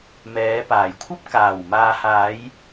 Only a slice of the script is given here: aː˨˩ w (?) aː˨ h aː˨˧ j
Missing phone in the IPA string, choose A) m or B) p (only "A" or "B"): A